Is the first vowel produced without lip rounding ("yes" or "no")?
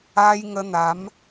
yes